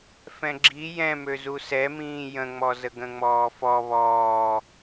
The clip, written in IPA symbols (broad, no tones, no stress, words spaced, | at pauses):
fɛ̃ɡ͡ǁi jɛ̃ møzusɛmĩː jə̃ŋ͡mɔ zəɡə̃ŋ͡mɔːfɔ βɔː